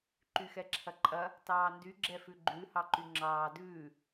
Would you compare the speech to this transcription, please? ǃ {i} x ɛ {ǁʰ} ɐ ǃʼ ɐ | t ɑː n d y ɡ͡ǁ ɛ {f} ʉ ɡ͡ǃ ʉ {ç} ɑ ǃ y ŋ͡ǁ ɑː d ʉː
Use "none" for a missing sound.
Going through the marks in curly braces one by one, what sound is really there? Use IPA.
y, ǁʰ, f, h

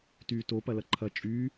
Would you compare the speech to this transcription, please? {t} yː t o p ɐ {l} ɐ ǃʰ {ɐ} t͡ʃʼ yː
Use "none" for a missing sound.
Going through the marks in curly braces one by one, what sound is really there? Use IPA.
t, l, ɐ

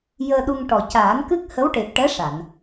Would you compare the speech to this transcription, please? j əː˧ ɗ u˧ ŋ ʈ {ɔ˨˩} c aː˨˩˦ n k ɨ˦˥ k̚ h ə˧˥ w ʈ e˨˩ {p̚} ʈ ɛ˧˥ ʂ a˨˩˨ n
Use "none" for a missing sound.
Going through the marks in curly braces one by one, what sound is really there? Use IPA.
ɔ˨˩, p̚

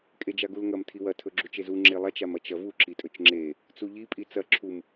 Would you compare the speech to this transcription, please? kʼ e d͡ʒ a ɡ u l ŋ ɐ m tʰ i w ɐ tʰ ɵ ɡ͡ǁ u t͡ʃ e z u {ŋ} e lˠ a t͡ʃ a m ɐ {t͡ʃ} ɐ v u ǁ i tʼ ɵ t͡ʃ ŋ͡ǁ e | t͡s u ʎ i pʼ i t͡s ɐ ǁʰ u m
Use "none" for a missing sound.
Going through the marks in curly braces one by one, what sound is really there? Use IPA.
ŋ͡ǁ, t͡ʃ

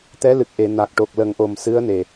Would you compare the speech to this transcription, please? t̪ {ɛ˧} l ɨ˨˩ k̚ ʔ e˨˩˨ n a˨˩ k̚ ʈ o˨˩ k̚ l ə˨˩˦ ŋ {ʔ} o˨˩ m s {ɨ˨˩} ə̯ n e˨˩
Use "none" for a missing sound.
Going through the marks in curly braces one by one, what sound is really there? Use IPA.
ɛ˧˥, ʔ, ɨ˧˥

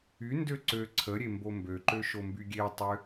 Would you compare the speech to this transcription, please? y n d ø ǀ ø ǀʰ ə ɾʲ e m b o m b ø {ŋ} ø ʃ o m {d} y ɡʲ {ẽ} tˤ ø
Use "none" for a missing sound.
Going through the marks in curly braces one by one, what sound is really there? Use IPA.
ǃ, b, e

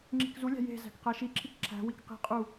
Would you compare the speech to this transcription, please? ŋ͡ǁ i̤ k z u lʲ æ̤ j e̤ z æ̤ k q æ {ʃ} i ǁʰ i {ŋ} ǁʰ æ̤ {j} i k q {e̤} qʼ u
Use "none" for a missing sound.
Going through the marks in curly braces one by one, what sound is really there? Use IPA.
ʃ, k, w, i̤

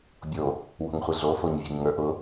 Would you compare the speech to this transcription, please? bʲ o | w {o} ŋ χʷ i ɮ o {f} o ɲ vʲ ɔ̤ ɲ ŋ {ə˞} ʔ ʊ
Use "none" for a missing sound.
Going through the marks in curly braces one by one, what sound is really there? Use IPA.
o̤, f, ə˞

